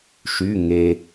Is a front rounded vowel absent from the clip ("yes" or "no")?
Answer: no